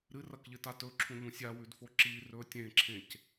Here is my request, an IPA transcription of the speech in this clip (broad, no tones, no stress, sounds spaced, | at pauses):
ɾ ɨ r ɐ k ʎ ɨ t a t ɵ ǁʰ ũ ʎ ũ sʲ a w ʉ d f o ǁ i r ɵ tʲ ẽ ǁʰ ẽ c